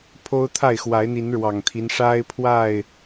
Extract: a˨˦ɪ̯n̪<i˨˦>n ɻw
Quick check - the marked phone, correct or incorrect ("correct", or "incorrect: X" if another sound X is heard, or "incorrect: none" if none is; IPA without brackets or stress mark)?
correct